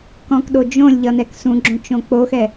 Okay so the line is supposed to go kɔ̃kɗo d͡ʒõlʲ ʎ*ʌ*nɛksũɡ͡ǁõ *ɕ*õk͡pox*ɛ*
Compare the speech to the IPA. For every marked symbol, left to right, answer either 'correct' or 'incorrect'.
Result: correct, incorrect, correct

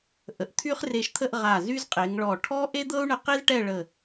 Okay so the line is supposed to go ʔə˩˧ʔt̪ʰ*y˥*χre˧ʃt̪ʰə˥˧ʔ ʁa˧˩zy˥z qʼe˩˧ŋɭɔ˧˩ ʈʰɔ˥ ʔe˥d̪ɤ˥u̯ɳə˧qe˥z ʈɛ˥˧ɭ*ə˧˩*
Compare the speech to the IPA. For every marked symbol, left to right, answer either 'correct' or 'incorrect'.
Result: correct, correct

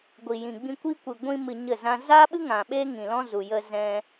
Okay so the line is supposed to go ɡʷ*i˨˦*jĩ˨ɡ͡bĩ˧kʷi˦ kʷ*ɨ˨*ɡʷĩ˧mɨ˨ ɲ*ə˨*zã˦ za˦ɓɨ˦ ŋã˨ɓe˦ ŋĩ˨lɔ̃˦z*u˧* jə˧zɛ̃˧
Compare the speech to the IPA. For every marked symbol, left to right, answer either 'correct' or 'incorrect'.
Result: incorrect, correct, incorrect, incorrect

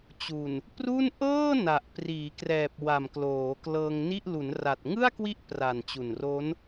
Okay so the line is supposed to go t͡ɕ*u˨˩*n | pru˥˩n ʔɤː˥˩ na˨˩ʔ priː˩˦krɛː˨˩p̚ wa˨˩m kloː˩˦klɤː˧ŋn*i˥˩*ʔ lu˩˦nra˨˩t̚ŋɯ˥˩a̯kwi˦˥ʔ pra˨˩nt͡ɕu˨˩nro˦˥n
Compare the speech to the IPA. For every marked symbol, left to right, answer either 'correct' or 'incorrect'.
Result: correct, correct

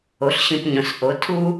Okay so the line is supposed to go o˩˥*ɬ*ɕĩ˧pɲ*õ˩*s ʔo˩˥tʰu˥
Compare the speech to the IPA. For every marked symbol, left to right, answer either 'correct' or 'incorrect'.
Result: correct, correct

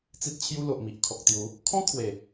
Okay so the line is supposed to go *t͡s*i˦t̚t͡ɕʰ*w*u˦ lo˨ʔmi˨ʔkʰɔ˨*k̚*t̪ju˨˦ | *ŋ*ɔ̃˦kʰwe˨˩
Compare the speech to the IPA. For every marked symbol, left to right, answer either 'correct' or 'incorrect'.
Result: correct, incorrect, correct, incorrect

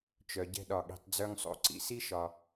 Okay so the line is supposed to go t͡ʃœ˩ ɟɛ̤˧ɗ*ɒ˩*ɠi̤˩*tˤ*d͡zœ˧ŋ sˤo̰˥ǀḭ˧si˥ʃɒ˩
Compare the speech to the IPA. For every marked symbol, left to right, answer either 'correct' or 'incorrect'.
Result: correct, correct

